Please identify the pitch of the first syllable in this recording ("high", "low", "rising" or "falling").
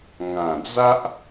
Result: low